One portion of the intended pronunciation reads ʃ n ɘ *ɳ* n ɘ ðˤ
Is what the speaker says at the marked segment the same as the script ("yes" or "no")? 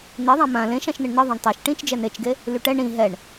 yes